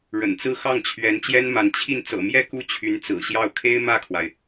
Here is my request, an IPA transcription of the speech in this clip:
ɻ ə̰˨˩ n t͡s ɹ̩˥˧ x ɑ˥˩ ŋ t͡ɕʰ ɥ ɛ˧˥ n t͡ɕ j ɛ˥ n m a˧˥ n t͡ɕʰ i˥˩ n t͡s ɤ̰˨˩ m j ɛ˥˧ k u˥˩ t͡ɕʰ y˧˥ n t͡s ɹ̩˨˩ ɕ j ɑ˥˩ ʊ̯ kʰ e˥ ɪ̯ m ä˥˩ kʰ w a˩ ɪ̯

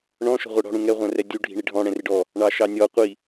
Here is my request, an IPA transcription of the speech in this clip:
ɳ ɔ̃ ʃ ɔ̤ ʁʷ ɛ ɽ ɔ̤ ɽ ũ ŋ ɛ ʁʷ æ̃ r ɛ dʲ u ɖʱ i̤ ɳ i ɖʱ ɔ̃ ɽ ɛ̃ r ɪ ɖ ɔ | ɳ ɑ ʃ ɑ nʲ ɔ qʷ i

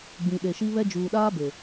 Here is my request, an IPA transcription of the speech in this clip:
ɡ͡b ĩ˨ ɗ e˨ ʃ i˦ β ɛ˦ d͡ʒ uː˨ ɗ aː˦ b e˨

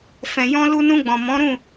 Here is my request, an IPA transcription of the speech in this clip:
f ɛ̃˧ j ɔ̃˦ l u˧ n ũ˧ ɡ͡b ɔ̃˨ m ɔ̃˨˦ ɾ ũ˦˨

